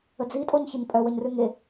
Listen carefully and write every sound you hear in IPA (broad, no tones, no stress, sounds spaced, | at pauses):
ə d͡z i tʼ o ɲ ç ə ɲ pʼ œ w ə ɲ r ʉ ŋ e